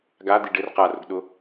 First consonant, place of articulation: velar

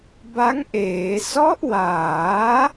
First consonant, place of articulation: labial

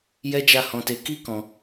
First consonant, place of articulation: palatal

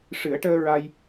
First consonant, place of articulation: retroflex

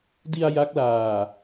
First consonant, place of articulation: alveolar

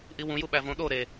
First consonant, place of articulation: glottal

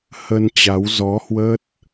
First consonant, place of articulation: glottal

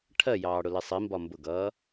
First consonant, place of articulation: retroflex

